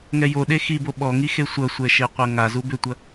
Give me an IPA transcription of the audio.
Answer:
ŋ ɛ j o ɗ e x i b o ɓ ɔ ŋ i x e sʷ ɐ sʷ ɛ ʃ e qʷ ɐ ŋ a z u b ʏ tʷ ɐ

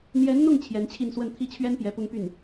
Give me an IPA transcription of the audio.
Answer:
n̪ j ɛ˧˥ n n̪ ʊ˥˩ ŋ t͡ɕʰ j ɛ˧˥ n t͡ɕʰ i˥˧ n s w ə˥˧ n t̪ʰ i˥˩ t͡ɕʰ ɥ ɛ˥ n p j ɛ˧˥ p ʊ˥ ŋ p y˥˩ n

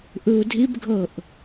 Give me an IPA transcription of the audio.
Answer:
ʔ ɯ u̯ dʱ i b ɡʱ ɤ ʔ

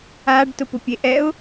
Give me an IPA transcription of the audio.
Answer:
a ɖ t ʊ p ʊ pʲ e ʔ ɛ ʊ̯

